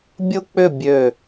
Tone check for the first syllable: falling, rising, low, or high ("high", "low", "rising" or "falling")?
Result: high